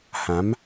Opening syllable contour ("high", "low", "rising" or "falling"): rising